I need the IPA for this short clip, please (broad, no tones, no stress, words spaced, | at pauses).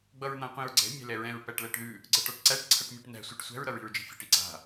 ɡ͡bʌɹn̪ãqʷĩɹɡ͡ǀɛ̤ mʲæ̤lɛɹɛ̃ɹ pæʈlæʈðʉ | ɡ͡ǀʌʈɒʈǀæʈ ǀʰʌʈmʲɛʈnæ̤ sʷɛʈsʷæ̤ɹ ɾʌɹi̤ɹd͡ʒi̤fʲɛ̤ʈ iǀa̤